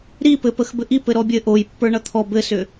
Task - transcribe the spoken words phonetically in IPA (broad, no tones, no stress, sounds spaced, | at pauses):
ɾ i p ɘ p ə x b ɘ ʔ i p ɘ ɾ ɔ bʲ ɘ ʔ o j pː ə˞ ɳ ʌ t̪ʰ ɔ b ɘ s ʏ